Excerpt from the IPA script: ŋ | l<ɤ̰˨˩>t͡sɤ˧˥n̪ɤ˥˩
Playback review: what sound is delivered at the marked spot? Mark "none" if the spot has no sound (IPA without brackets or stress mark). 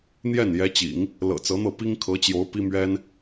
ɤ̰˨˩